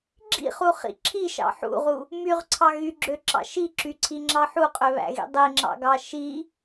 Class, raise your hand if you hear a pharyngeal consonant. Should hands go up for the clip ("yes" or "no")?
yes